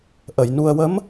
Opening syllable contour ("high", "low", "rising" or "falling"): low